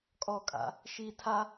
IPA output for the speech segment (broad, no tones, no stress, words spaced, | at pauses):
kʼɔkʼa̰ | ʃi tʰa